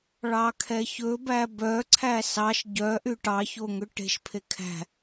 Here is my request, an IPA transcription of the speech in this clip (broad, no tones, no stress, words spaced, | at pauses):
ɭɑkʰɛçɵbæ bœǀʰæ sɑʃ ɟœʔy ʈɑço ŋøʈe̤ʃpʰe kʰæ̤